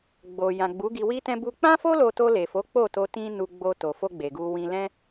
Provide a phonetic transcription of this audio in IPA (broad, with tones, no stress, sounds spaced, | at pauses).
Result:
ɡ͡b o˨ j ã˨ ɡ͡b u˨˦ ɡ i˧ w i˦ t ɛ̃˦ b u˧ k͡p ã˦ f o˦ l o˧ t o˧ l e˨ f o˨˦ k͡p o˦˨ t o˧ t ĩ˦ n u˧ ɡ͡b o˧ t o˨ f o˧ ɡ͡b e˨ ɡ u˧ w ĩ˧ l ɛ̃˦